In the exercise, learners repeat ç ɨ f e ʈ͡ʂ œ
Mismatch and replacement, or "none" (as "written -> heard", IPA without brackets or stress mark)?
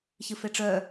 none